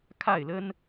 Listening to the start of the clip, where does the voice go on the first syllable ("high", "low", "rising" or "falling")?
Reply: falling